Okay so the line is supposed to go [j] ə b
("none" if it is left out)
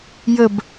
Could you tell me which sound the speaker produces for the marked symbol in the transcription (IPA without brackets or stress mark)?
j